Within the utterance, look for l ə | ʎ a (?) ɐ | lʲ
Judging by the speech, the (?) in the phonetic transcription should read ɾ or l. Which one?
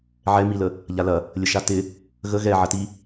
l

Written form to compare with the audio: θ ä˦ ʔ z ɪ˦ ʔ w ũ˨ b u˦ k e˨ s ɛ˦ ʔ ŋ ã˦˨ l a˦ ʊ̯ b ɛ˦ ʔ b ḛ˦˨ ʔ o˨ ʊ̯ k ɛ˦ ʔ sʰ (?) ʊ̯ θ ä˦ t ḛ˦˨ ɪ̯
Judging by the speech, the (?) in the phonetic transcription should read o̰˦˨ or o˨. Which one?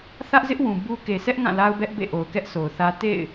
o˨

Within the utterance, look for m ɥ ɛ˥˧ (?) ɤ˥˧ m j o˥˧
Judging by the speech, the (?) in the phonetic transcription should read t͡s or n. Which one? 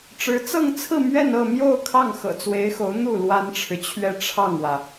n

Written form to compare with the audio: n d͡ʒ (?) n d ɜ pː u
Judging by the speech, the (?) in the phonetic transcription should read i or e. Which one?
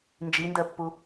i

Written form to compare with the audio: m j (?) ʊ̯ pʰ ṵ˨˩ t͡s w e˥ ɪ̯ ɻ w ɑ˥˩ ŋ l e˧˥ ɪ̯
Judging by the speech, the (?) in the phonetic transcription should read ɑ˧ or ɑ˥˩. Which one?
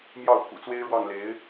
ɑ˥˩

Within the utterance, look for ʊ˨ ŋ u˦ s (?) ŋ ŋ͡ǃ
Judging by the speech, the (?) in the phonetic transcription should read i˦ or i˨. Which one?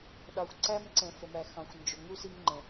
i˦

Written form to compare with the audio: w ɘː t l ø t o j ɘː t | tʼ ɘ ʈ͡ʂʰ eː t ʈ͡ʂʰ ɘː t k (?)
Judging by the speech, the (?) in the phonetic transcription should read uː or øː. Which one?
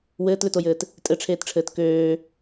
øː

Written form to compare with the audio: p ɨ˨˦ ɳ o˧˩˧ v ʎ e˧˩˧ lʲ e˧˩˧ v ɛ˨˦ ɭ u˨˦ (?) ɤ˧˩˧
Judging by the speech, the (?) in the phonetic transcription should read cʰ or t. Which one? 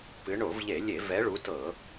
t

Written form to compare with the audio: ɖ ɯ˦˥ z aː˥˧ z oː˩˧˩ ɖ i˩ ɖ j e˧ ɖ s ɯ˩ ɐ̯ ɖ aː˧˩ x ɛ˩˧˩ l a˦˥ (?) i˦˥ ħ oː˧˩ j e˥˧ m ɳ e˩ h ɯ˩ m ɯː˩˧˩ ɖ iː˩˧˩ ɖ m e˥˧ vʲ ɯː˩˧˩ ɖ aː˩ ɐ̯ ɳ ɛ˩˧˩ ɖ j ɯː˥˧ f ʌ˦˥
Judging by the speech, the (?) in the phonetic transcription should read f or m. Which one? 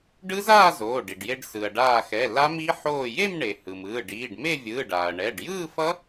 m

